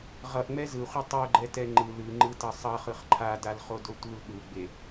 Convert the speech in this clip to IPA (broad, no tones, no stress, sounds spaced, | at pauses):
ʁ ʌ ʔ ŋ͡m ɛ z ɯ χʷ i tˤ o ɡ͡ǃ ɛ t ɛ ŋ͡ǃ ɯ l ɯ ŋ͡ǃ ɯ t ʌ sˤ ʌ χ ɯ χ ǃʰ a d a l χ o d o tʷ ɯ l ɗ u ɡ͡b e